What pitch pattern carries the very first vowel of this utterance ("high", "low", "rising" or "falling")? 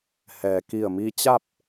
low